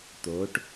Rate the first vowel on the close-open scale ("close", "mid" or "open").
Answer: mid